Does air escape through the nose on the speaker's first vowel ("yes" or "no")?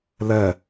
no